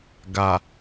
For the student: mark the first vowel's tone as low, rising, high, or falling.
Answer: low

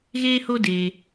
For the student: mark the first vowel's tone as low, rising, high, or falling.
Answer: high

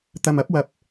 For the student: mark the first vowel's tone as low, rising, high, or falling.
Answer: low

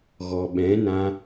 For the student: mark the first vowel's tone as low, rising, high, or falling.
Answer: low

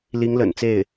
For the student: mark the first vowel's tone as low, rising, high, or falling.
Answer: rising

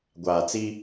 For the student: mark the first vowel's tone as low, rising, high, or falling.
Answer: low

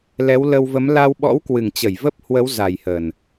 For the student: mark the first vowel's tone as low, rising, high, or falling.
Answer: rising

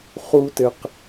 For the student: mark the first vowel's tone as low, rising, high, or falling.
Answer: high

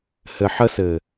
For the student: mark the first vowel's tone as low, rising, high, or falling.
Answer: low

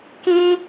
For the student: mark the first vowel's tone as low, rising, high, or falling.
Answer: high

